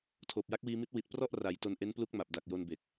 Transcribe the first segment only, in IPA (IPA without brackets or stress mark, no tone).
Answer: tʰ